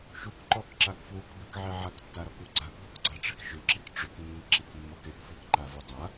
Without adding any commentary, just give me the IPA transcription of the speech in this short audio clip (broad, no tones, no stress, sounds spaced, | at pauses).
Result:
ʃ u k ǃ ɔ k ǁ a k f w u k b i k ʕ e ʕ a k tː a ɾ ɔ k u ɡ͡ǀ a k b ɔ k ɡ͡ǀ a ʈ͡ʂ e k ʃ ʏ ǁ i k ʈ͡ʂ ʏ k mː i ǁ i k mː ɔ k e k f u k ǃ a v u dˤ a